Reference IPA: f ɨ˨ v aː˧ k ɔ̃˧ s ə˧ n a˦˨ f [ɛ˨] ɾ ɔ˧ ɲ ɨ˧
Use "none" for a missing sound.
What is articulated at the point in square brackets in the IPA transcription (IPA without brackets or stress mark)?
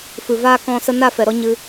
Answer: ɛ˨